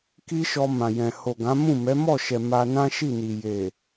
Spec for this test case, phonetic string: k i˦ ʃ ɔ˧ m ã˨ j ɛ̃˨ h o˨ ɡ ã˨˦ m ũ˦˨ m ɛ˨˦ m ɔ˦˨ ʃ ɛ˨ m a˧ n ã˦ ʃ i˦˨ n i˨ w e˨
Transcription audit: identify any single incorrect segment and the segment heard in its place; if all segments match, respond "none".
w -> j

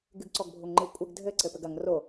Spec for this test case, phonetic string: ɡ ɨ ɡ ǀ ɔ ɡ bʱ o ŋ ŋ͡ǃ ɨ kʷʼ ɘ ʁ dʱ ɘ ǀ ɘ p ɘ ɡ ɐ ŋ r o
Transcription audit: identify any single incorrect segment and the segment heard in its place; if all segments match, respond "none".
ʁ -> ɡ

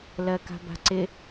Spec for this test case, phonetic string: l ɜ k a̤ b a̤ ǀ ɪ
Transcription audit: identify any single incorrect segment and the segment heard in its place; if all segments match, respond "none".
none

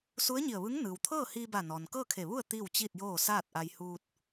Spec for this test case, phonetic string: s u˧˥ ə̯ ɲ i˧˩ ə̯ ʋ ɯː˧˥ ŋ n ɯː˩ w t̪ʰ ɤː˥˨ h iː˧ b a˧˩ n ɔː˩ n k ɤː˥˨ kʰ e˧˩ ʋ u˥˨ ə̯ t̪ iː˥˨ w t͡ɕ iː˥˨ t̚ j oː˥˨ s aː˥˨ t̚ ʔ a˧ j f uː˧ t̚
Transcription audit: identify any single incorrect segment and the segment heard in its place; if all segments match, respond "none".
f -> h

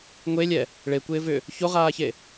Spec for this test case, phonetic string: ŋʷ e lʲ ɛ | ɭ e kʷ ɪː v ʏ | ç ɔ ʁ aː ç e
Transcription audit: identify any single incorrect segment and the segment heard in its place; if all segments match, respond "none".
ɔ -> o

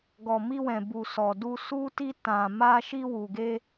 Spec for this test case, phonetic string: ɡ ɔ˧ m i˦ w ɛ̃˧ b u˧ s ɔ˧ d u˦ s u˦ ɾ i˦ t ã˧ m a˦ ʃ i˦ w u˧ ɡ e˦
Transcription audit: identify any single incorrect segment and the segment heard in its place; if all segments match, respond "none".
ɾ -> t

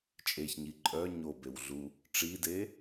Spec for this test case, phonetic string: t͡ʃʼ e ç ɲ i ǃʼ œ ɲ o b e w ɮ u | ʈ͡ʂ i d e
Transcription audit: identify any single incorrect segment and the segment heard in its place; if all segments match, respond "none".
none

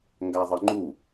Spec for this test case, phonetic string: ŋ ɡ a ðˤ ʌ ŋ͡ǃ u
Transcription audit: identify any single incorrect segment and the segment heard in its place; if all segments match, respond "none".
none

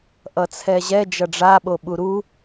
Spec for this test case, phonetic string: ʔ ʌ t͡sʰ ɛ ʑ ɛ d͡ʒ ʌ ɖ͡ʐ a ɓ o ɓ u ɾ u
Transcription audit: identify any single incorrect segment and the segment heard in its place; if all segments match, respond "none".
none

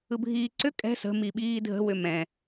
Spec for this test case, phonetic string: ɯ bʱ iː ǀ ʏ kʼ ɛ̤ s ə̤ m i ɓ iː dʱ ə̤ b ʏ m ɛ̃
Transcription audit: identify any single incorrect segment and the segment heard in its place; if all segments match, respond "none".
b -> w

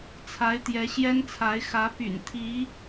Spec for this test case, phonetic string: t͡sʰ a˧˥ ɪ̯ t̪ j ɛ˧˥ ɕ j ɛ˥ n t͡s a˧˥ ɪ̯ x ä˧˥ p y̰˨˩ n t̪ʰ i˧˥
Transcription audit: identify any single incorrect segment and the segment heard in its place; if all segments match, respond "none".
t͡s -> t͡sʰ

